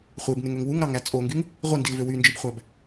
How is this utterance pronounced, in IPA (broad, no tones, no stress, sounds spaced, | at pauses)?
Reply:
χʷ e b n e ŋ ø ŋ w u ŋ ɾ ɑ ŋ æ t͡sʼ o ŋ ɡ y ŋ | ʁʷ i n d i l v ø w y n d͡ʒ i b χʷ æ b